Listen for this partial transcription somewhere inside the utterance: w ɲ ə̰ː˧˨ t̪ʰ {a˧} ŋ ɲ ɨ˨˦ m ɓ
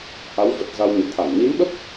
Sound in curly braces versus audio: incorrect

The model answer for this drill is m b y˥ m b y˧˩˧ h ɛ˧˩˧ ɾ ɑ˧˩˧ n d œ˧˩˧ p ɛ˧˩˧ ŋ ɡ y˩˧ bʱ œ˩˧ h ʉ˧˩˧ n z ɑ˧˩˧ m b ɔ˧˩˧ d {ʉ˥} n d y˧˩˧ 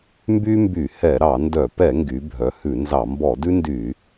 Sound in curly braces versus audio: correct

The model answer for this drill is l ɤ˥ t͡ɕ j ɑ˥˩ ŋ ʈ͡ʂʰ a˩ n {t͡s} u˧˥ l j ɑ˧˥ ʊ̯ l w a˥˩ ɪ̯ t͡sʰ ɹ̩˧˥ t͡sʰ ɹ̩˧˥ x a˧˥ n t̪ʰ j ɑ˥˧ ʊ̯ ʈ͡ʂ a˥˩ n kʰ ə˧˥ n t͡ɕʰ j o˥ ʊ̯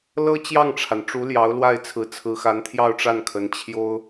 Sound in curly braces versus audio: incorrect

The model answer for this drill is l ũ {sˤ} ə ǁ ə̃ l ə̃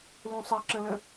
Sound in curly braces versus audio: correct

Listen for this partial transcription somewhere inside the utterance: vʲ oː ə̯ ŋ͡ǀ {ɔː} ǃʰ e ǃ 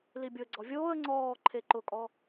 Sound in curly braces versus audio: correct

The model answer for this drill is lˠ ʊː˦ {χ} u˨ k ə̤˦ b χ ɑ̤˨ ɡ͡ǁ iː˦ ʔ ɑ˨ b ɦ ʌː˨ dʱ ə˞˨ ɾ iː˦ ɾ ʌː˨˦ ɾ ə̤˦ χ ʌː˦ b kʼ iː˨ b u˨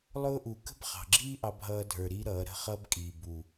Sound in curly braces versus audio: incorrect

